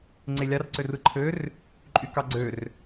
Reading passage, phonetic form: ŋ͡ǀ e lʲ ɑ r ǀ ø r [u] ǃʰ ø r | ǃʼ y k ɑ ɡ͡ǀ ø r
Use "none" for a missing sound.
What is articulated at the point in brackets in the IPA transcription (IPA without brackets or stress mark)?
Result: ɯ